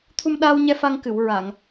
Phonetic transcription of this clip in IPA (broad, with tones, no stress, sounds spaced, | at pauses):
t̪ʰ u˧ m ɗ aː˧ w ɲ ɛ˧ f a˧ ŋ k ɨ˨˩˨ w ɹ a˨˩˨ ŋ